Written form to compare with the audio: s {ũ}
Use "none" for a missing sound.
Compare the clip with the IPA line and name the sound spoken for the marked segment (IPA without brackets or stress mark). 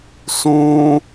ũ